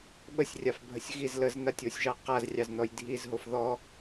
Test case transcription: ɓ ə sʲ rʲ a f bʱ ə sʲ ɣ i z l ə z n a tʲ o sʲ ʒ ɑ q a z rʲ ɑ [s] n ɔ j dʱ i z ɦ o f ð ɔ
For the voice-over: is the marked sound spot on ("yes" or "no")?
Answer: no